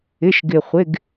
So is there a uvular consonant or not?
yes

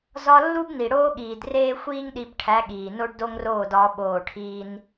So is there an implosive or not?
yes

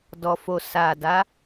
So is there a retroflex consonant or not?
no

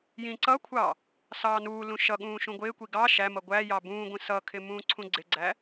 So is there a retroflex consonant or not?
no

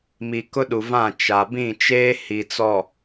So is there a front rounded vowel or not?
no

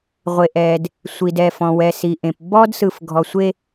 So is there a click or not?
no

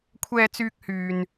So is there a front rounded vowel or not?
yes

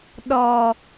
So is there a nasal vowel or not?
no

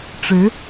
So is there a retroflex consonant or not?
yes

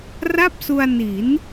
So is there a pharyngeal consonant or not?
no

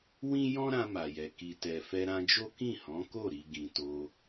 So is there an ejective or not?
no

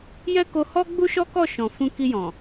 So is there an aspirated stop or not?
no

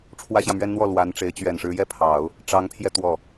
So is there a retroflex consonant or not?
yes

